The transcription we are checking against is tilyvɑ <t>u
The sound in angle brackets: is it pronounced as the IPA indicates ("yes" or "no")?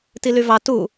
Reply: yes